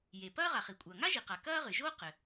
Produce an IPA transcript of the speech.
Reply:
je˩pɐː˥ ʁa˩χi˩kʷʼɐː˩ ŋa˥ʒi˩qa˩ kɐː˥ʁɨ˩ ʒoː˥qɘ˩

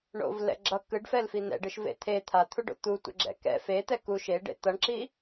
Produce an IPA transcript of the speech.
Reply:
ɳo̰vlɛ̰ ɡ͡ǁʌ kɯɖfɛlfi n̪ɛ̰ɖɯʃvḛ t̪ʰe t̪ʰat̪ʰuɖo̰ t̪utʷɛ̰ɡ͡ǁɛ̰ kɛ̰ fet̪ɛ ku ʃeɖḛ t̪ʌɳǁi

